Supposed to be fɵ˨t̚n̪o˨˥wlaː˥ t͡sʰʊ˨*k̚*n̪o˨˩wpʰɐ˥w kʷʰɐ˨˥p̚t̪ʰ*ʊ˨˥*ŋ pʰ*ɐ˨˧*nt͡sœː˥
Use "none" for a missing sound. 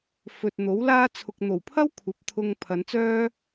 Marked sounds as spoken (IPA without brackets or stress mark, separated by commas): k̚, ʊ˧, ɐ˨˧